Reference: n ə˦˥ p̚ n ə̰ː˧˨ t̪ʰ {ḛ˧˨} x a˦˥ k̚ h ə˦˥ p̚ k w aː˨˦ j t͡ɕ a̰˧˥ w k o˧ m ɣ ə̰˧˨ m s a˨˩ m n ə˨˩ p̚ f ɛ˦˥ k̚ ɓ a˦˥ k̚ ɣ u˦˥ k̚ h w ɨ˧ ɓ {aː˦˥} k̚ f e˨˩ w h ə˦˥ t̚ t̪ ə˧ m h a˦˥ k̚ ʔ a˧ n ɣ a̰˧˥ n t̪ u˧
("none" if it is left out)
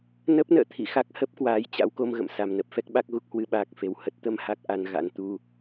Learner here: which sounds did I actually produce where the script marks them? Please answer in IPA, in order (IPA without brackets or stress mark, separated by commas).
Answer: ḭ˧˨, aː˦˥